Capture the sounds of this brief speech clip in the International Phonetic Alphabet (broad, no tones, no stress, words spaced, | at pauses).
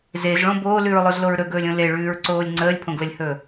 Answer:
zezɭõ boːlʉɹlˠozloɹ ɾɵɡɵːlʲõ leɭʉːɹǀoːlʲ ŋ͡ǀəːlʲpʰõɡləlʲhɵː